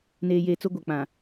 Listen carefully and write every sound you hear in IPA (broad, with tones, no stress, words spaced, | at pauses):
neː˨jeː˨t͡so˦ ɡʷa˨k͡pã˨